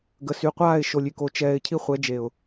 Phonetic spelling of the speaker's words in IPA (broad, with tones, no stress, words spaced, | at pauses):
ɡə˨sy˨qʷaː˦˨ɪ̯ ʃo˨lʲy˨ko˨ t͡ʃɛː˨ɪ̯ cʰi˦χʷɛ˨˦d͡ʒe˨ʊ̯